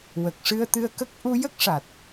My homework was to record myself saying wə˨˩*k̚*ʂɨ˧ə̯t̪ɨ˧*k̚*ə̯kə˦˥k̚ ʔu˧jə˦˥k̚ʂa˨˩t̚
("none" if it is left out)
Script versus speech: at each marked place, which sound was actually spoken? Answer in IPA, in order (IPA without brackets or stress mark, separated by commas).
k̚, none